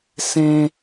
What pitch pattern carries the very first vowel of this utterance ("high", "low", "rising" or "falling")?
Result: high